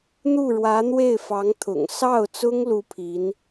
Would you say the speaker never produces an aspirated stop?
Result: no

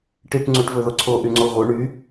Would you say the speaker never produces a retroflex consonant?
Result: no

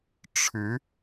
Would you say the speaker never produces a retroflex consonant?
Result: no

